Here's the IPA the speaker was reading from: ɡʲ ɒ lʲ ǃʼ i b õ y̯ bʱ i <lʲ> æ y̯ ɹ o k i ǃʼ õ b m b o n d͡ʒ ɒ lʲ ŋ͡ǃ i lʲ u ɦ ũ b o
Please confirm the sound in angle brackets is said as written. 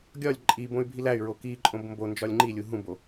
no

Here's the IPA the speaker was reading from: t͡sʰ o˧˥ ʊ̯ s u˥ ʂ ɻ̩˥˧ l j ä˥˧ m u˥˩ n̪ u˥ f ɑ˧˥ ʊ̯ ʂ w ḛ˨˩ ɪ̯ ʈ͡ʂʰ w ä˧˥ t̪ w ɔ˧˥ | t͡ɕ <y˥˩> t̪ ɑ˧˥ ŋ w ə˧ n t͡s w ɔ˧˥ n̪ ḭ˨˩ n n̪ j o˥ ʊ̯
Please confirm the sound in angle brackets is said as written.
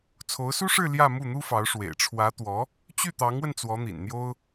yes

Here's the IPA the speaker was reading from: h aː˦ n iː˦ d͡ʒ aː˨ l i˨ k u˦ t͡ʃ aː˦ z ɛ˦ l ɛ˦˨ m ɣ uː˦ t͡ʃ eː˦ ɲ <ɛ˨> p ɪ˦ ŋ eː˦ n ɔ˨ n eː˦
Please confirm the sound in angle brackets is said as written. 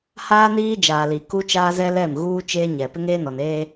yes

